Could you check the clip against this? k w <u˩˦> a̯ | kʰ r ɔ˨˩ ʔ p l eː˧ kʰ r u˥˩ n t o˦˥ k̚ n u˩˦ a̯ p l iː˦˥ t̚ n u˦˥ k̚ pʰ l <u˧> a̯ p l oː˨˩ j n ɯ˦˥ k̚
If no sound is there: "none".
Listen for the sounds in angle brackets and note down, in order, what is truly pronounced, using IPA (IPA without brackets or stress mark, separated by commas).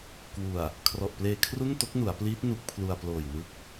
u˨˩, u˧